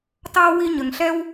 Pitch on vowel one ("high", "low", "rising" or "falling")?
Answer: high